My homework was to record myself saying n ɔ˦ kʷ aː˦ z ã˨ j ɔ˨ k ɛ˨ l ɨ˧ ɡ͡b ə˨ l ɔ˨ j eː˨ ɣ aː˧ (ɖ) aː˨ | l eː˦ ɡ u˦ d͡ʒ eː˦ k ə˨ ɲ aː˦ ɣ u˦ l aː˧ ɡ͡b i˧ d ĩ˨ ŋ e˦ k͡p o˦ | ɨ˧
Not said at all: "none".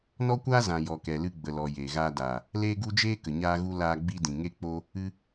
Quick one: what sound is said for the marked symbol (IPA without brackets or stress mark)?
d